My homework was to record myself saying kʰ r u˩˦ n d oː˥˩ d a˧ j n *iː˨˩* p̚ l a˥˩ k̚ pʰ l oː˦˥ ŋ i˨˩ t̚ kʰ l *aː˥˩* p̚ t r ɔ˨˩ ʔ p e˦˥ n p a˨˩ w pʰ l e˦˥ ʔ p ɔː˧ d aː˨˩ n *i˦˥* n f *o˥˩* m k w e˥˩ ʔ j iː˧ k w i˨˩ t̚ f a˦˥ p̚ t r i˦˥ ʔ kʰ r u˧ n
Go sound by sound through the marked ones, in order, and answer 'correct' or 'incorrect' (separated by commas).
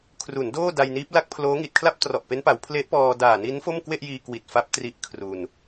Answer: incorrect, incorrect, correct, correct